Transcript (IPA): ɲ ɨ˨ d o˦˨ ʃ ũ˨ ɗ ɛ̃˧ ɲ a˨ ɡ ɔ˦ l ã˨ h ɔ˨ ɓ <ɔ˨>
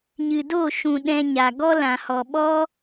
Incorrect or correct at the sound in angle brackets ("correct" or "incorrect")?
incorrect